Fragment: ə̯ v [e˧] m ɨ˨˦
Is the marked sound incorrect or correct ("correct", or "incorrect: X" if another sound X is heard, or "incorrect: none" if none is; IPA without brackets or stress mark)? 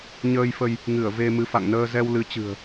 correct